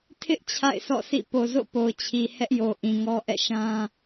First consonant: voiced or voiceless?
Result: voiceless